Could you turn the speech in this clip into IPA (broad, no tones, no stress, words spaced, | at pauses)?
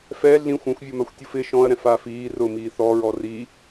fɛ ɮĩxʷ ɛ̃xʷvʲomaxʷtʲuf ɪ ʃɔ̃ɐ̯ɾɛ̃faːf iː rʊmiː θɔɹɔ ri